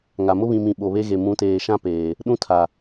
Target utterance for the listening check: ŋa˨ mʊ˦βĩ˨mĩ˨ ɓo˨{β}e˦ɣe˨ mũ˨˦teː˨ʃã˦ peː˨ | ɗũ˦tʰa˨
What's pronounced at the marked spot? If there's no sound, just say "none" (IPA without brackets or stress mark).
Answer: β